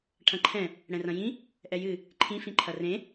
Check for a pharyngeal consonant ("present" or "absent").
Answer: absent